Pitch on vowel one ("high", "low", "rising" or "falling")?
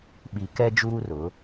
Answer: low